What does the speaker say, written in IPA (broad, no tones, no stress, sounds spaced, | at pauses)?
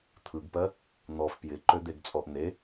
t̪ʰ ɯ ɡ p ɜ | n̪ ɔ f p j ɪ ǃ ø d̪ e ɡ t͡sʼ ɔ ʔ n̪ e